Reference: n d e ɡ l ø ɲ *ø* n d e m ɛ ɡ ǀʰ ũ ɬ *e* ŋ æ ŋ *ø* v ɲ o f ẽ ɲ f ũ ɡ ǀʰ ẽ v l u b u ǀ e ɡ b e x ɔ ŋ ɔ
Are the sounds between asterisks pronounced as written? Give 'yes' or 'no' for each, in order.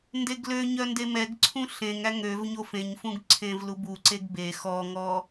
no, no, yes

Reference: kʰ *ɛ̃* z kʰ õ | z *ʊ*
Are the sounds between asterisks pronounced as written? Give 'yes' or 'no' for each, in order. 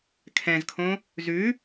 yes, no

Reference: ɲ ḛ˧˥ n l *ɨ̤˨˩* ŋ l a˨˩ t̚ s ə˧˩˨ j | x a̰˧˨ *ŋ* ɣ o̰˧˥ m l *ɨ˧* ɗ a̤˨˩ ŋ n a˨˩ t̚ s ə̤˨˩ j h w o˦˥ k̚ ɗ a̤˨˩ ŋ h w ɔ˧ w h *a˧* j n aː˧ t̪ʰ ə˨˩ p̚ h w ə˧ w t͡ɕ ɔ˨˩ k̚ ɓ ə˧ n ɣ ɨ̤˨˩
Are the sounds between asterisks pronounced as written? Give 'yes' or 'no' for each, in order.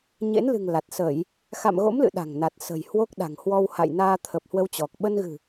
yes, no, no, no

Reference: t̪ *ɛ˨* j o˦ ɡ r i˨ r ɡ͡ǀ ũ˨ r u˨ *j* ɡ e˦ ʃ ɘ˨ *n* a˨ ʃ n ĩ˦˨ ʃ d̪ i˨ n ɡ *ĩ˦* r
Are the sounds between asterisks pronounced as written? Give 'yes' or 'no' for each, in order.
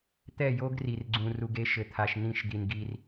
no, no, no, no

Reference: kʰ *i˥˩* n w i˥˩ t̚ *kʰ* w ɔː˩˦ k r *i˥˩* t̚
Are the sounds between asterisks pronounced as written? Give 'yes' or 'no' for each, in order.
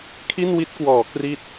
yes, no, yes

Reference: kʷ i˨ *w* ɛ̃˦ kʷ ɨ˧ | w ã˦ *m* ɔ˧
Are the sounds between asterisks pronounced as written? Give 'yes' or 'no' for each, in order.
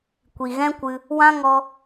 no, no

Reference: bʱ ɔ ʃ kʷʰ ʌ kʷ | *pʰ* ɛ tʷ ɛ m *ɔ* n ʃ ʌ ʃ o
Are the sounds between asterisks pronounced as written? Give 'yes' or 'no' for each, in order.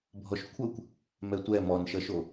no, yes

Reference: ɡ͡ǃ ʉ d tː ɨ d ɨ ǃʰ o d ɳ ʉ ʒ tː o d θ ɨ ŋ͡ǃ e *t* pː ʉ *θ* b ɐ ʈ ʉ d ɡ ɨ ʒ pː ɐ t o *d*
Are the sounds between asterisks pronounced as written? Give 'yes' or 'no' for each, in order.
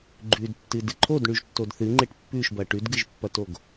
no, no, no

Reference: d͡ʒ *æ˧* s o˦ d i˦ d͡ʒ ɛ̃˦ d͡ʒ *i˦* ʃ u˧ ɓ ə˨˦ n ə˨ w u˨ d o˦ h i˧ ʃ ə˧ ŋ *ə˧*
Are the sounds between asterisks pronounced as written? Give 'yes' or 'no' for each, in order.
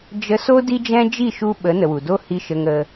no, no, yes

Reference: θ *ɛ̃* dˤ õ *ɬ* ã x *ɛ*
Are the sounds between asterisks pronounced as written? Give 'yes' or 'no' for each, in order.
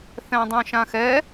yes, no, yes

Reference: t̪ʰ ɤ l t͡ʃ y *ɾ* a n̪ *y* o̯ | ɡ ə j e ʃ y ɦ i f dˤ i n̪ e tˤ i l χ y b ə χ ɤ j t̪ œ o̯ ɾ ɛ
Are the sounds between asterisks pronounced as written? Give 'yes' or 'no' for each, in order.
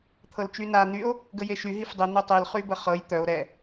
no, yes

